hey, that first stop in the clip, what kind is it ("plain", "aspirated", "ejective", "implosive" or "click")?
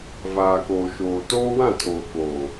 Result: plain